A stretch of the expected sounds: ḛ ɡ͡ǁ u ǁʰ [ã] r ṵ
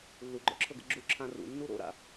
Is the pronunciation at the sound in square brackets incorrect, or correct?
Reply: correct